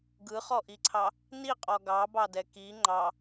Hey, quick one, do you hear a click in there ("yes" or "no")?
yes